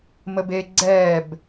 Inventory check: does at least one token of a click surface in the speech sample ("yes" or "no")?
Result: yes